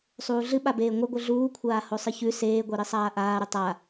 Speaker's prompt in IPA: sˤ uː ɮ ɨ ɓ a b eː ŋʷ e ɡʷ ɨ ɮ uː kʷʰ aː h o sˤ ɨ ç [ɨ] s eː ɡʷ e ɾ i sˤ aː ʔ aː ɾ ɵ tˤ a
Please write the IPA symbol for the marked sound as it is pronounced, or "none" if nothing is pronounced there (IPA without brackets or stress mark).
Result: ʉ